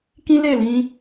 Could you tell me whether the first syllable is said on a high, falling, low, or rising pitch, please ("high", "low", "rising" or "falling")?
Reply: high